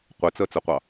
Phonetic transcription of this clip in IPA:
qʷ e t͡s ɜ t͡s ə qʷ ɑ

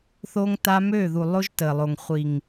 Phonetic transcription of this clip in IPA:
θ o˦ ŋ t a˦ m ø˦˨ ð u˨ lˠ o˦ ʒ t ə˨ lˠ o˨ ŋ χʷ i˨ ŋ

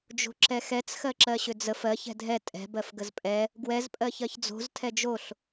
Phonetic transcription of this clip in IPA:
d͡ʒ o̤ ǁ ɛ x ɛ t͡s x ɜ ǁ ɜ ɕ ʏ d͡z ə f ɜ ç ɛ̤ dʱ ɛ tʼ ɛ̤ b ɜ f ɡ ə z pʼ ɛ | ɡ w ɛ z pʼ ɜ ç ɜ ç d͡z o̤ z tʰ ɛ d͡ʒ o ɬ

